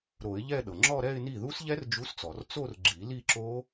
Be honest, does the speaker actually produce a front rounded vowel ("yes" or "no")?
no